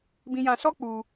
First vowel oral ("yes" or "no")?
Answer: no